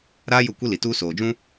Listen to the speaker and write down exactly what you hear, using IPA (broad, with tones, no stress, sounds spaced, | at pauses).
ɾ aː˦ j ʊ˦˨ kʷ i˦ l i˨ t uː˦ s oː˨ d͡ʒ ũ˦